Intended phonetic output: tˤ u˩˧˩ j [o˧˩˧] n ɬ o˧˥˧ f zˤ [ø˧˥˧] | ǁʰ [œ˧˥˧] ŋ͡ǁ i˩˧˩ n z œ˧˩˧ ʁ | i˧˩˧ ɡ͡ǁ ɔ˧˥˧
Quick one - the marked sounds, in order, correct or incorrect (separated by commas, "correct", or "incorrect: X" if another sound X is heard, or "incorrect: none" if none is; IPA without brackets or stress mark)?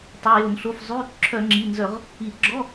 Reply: correct, incorrect: y˧˥˧, incorrect: œ˧˩˧